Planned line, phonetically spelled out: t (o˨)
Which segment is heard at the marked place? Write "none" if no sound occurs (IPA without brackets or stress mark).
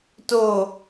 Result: o˨